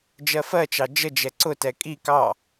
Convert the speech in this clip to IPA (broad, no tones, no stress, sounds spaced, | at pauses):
d͡ʒ ɜ f ɜ t͡ʃ ɑ d͡ʒ ə d͡ʒ ɛ ǀ ʊ t ɛ kʼ i k ɑ